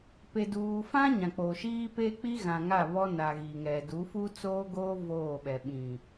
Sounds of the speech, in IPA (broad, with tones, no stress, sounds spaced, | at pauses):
p e˨ d uː˨ f ã˦ ɲ ã˨ k͡p oː˨ ʃ iː˦ p e˦ k͡p i˦ ɣ ã˨ ŋ a˦˨ β ɔ˦ n a˨ ɣ i˨ ŋ ɛ˨ d u˨˦ f u˦ t͡s oː˦ ɡ oː˦ v oː˦˨ ɓ ɛ˨ ɓ ĩ˨